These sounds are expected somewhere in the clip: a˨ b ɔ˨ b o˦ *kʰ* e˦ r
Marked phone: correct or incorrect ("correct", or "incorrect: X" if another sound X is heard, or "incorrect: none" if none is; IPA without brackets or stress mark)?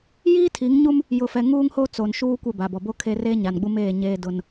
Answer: correct